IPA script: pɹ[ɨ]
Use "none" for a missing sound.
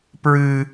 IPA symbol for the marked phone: ɨ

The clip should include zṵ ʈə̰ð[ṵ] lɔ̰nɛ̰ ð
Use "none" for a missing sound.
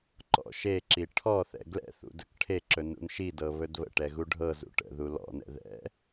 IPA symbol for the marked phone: u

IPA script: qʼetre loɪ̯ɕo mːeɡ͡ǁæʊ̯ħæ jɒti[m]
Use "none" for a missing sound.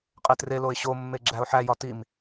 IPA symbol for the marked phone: m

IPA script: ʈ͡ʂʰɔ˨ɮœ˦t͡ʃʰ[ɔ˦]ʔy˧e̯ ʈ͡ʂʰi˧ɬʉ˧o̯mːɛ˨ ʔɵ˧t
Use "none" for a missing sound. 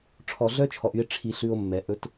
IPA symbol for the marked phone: ɔ˨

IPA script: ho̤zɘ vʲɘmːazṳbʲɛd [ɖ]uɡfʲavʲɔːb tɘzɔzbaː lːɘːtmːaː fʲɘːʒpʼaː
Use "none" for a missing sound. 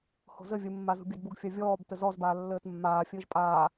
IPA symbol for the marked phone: b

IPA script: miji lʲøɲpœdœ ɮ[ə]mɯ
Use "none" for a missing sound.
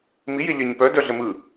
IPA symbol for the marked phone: ə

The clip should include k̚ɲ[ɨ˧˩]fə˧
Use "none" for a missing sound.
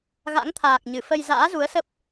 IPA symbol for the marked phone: ɨ˧˩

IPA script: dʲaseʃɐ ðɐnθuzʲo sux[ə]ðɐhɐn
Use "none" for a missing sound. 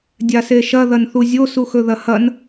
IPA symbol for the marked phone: ɵ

